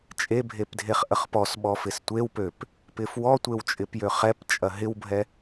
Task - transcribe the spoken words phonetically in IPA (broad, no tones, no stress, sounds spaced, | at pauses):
t͡ʃʼ e bʱ e p dʱ e χ ʔ ə χ p ɔ s ɓ ɔ f ɪ s tʷ e w p ø p | p ɪ f w ɔ tʷ e w t͡ʃʼ ɪ p j ø χ ɛ p t͡ʃʼ ɐ ɦ ɪ w bʱ ɛ